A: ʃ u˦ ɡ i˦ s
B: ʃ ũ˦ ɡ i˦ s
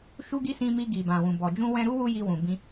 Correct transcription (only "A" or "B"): A